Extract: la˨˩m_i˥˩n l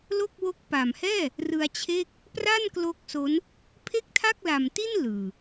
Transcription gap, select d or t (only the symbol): t